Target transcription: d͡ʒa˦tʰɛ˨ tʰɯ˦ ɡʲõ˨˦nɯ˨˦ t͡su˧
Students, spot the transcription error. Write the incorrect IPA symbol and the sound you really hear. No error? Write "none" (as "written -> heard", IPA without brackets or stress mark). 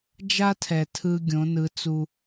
none